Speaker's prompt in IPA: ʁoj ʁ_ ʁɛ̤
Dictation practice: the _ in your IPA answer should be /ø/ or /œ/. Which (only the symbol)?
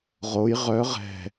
œ